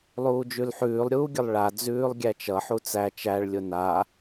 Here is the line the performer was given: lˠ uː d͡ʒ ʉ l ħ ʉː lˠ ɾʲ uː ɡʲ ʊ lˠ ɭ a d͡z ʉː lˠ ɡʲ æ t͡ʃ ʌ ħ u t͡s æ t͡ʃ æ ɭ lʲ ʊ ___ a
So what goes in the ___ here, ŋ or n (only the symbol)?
n